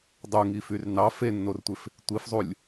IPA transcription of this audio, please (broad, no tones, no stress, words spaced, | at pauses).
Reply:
dˤuŋifyr nɑ fenːortʷef | tʷifzˤulʲ